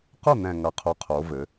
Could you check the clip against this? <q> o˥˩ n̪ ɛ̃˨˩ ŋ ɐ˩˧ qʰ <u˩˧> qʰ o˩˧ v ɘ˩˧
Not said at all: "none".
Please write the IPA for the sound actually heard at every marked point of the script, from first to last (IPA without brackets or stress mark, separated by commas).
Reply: q, u˩˧